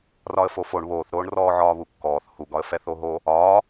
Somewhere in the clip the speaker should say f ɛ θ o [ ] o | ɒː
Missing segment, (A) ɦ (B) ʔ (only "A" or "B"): A